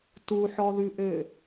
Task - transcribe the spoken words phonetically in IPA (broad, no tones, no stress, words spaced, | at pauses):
tuħɔðʉʔø